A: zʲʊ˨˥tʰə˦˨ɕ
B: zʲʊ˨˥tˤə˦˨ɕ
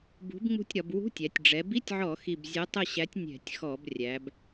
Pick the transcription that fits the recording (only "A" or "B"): B